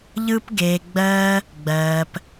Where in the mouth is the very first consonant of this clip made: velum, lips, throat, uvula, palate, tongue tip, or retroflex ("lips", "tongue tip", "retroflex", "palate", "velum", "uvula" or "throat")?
palate